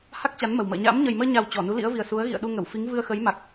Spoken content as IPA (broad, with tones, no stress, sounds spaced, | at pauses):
h a˦˥ k̚ t͡ɕ a˨˦ n m ə˨˩ w m ə̰ː˧˨ ɲ a̰ː˧˥ m ɲ ə˨˩ j m əː˧ ɲ a˨˩ w t͡ɕ ɔ˧˩ n u˨˦ l ḭ˧˥ ə̯ v i˨˩ ə̯ s u˨˦ ə̯ ɣ ḭ˧˨ ə̯ ɗ u˧ ŋ ə˧˩ w f i˨˦ ŋ v ɨ˧ ə̯ x ə˨˦ j m a˨˩ k̚